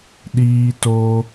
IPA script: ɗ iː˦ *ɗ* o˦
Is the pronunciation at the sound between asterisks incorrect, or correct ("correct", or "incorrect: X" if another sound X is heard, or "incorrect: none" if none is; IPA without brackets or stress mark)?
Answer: incorrect: t